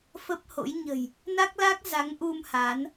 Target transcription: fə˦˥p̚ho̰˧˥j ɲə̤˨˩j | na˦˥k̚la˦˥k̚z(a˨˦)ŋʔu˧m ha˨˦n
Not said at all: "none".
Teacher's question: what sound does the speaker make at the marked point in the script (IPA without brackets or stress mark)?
a˨˦